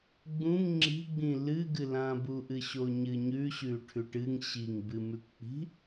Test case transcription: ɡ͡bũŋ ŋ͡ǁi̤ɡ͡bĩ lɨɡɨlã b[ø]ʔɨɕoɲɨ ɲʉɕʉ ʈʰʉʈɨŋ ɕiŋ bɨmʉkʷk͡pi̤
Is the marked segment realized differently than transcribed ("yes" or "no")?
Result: yes